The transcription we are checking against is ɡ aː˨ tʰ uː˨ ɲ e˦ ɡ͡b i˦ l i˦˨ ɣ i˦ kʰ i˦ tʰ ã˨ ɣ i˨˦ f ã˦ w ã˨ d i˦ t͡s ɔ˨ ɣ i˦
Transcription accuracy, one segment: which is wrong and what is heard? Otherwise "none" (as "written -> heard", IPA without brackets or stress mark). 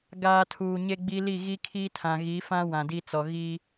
none